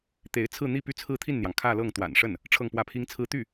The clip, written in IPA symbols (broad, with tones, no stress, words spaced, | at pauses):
t̪e˧˥ɪ̯ t͡sʰɹ̩˥˧n̪i˥˧ py˥˧t͡sʰɹ̩˥˧t̪ʰi˥˩nn̪jɑ˩ŋ kʰä˥˧lɤ˥˩ŋ t̪wa̰˨˩nʂə˥˩n | ʈ͡ʂʰɤ˥˧ŋpwä˥˩pʰi˥ŋt͡sʰɹ̩˥ t̪y˥˩